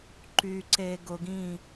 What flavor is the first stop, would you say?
click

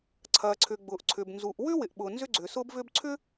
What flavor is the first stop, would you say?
click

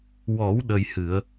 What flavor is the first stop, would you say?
implosive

